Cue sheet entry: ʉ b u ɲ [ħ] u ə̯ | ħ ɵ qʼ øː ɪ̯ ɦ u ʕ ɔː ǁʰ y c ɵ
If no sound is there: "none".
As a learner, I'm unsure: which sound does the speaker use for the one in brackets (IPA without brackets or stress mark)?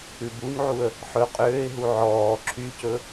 ʕ